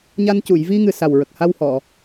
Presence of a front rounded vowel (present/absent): absent